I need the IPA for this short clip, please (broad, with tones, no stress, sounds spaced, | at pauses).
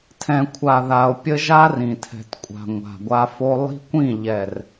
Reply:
tʰ ɛ̃˨ kʷʰ a˨ ð a˨ o̯ pʲ ə˦ ʒ a˦ r ĩ˨ tʰ ɛ̤˨ t kʷʼ a̤˨ ŋʷ a̤˨ ɡʷ a˦ f o˦ lˠ i̤˦ kʷ ĩ˦˨ ʎ ɛ˨ r